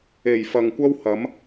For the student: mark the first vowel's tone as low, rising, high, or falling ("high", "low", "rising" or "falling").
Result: low